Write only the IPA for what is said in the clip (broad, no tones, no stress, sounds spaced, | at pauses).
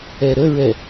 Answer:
ɛ ɾ ə ɹ ɛ